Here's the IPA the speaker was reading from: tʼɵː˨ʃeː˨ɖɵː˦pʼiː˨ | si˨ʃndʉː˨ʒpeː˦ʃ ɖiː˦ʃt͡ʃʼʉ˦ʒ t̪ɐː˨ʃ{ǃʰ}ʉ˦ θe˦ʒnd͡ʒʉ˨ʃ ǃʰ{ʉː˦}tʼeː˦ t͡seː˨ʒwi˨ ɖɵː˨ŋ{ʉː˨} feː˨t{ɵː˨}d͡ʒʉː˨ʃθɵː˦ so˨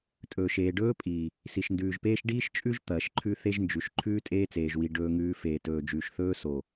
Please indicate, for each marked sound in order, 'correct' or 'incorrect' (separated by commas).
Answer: correct, correct, correct, correct